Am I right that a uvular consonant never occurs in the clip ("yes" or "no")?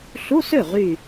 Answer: no